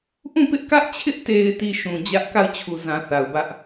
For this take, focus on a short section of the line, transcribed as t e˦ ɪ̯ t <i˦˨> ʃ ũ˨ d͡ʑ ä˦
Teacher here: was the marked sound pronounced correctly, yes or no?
yes